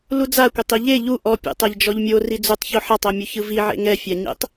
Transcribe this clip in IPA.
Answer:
l u d͡z a kʷ ɛ tˤ i ʎ e ʎ u ʔ ɔ pʲ ḛ tˤ ɛ ʎ d͡ʒ ɔ ʎ mʲ o r i d͡z u tˤ ç o ħ a tˤ ɤ mʲ u ç ɯ v i ʕ ḛ ŋ ɛ fʲ a ɲ ḛ tˤ

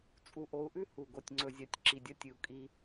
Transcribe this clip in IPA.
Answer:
t͡sʼ u˨ ʔ o˨˦ u̯ ʔ ʉ˦ h u˨ ɡ o˨ tʲ ŋ͡ǀ ɵ˨ zʲ a˨ tʲ ǁ i˨ dʲ ɐ˦ tʲ ɨ˨ u̯ kʼ i˦

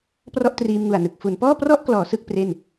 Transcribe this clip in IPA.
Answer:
p r ɔ˥˩ ʔ t r iː˧ m ŋ u˨˩ a̯ n ɯ˨˩ k̚ f u˩˦ n p ɔː˥˩ p r ɔ˥˩ ʔ k l ɔː˩˦ s ɯ˥˩ k̚ p r e˥˩ n

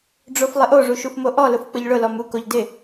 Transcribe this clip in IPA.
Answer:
ɖ͡ʐ o f lˠ ɪ ʔ o ʐ u ʃ u f m o ʔ ɔ l ʊ f k͡p ʊ ʎ ɭ ʊ l ɔ m u k o ʎ d ɪ

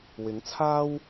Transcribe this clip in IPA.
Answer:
w ɪ˨˥ ŋ t͡sʰ aː˥ w

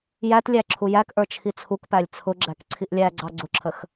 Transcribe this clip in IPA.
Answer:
j æ t lʲ æ ǁʰ u j æ k ʔ ə˞ t͡ʃʰ i t͡sʰ u k p æ lʲ t͡sʰ ʊ ɡ͡ǁ æ k ǀʰ i ʔ lʲ æ ɡ͡ǀ ɑ ɡ͡ǀ ʊ ǁʰ ə x

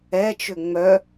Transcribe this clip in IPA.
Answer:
ɛ t͡ʃ ʏ ŋ͡m œ

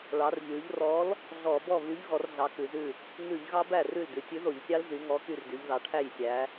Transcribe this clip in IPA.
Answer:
ɭ ɑ˩˧ r ʎ ʉ˩˧ ʎ r ɔ˨˥ l | ɮ ɔ˧˩˧ b ɔ˥˩ β y˨˥ ʎ ɣ ɔ˨˥ r ɮ ɑ˨˥ k ʉ˩˧ z ʉ˥˩ | ŋ ʉ˧˩˧ ʎ ɣ ɑ˦˥ b æ˥˩ r ʉ˥˩ l d ʉ˩˧ tʲ ʉ˨˥ ð o˧˩˧ ʎ sʲ ɑ˦˥ l z y˩˧ ŋ ɔ˨˥ k y˥˩ r d y˩˧ ʎ ð ɑ˩˧ ʈʰ æ˥˩ j sʲ æ˩˧

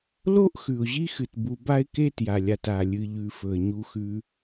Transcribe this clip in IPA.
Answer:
l o˥ ʔ x ʉ˩ ʊ̯ ʑ i˥ x ɨ˩ t b u˨ b a˦ ɪ̯ k e˦ t j a˩ lʲ a˩ t a˩ lʲ ɨ˨ ʎ ʉ˨ f ɵ˩ ə̯ ɲ u˨ x ʉ˨

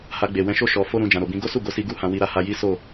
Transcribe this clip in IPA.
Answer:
h a˧ ɡ͡b e˨ w ɛ̃˧ ʃ o˦ ʃ ɔ˧ f o˦ ɾ ũ˧ d͡ʒ ã˨ ɾ o˨ b ĩ˧ ɡ o˦ s u˦˨ ɡ o˨˦ s i˧ ɡ u˦ h ã˧ w i˧ ɾ a˧ h a˧ j i˦ s o˦˨

